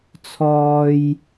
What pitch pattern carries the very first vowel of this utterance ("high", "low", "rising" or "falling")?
high